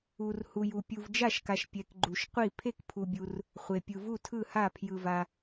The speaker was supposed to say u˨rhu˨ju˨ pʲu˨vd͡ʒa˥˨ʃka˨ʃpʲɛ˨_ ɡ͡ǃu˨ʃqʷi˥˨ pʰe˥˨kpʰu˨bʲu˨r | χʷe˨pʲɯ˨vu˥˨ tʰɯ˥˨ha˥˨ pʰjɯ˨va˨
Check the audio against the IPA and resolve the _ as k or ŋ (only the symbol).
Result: k